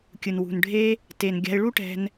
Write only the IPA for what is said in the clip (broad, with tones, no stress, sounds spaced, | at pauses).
kʲ ɯ˨ n w ṳ˨ n ɖʱ e˦ | t e˨ n ɡʲ a̤˧ ɪ̯ ɭ u˦ ʈ ɛ̤˧ n